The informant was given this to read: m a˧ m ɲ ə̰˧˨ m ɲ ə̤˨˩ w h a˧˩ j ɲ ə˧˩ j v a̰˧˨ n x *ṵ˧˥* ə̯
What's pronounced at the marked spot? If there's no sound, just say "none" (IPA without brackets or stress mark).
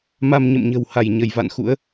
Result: ṵ˧˥